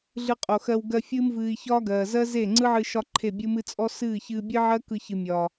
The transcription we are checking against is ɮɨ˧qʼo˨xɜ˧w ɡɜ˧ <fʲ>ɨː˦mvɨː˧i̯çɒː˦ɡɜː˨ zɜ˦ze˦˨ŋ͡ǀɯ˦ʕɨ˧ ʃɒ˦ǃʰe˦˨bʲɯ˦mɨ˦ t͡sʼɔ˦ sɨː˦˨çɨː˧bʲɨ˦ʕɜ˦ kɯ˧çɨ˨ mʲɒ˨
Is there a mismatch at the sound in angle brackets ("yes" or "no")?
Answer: no